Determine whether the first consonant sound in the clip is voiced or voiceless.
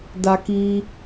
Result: voiced